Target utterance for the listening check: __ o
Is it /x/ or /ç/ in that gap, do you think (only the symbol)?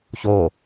ç